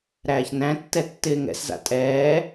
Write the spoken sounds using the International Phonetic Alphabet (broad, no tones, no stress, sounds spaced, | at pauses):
ɾ æː ç n æ̃ tː ɛ tː ɪː ŋ ɛ̰ s z a̰ tʼ ɛː